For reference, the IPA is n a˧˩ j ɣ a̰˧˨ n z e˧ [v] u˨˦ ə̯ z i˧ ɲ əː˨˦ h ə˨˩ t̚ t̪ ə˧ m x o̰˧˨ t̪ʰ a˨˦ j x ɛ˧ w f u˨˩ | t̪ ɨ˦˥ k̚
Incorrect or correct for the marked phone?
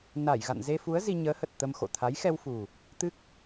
incorrect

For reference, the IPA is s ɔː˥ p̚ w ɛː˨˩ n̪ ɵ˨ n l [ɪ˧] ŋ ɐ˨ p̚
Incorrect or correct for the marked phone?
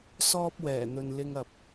correct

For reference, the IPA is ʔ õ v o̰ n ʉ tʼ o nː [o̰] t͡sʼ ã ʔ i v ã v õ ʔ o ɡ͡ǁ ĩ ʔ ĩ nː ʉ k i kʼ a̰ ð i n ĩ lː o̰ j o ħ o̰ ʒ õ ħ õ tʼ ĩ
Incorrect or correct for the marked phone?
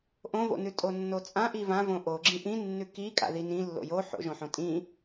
incorrect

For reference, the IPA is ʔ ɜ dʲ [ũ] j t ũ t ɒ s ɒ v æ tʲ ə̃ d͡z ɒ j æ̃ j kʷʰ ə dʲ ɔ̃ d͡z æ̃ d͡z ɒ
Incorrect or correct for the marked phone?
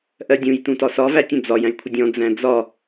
correct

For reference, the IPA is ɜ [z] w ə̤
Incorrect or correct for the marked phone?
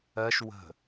incorrect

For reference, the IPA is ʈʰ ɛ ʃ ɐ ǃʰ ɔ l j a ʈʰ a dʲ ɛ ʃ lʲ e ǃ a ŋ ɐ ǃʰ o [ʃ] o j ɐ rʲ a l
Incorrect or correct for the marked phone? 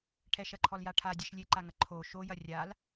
correct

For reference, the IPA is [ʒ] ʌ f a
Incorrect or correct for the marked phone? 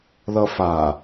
incorrect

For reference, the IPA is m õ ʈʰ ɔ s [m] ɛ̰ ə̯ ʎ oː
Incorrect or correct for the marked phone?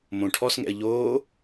incorrect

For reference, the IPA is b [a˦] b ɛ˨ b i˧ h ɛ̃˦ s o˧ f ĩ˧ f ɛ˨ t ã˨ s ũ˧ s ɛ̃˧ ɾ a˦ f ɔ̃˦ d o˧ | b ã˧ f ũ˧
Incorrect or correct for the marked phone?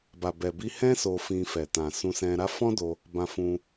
incorrect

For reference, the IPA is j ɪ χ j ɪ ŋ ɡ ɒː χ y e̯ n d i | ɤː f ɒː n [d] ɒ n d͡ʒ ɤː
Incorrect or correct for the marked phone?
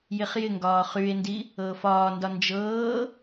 correct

